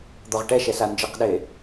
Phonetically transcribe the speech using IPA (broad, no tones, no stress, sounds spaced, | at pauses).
d̪ ɔ ʁ ʈ ɛ ʃ ɛ s a n d͡ʒ ɯ q ɗ e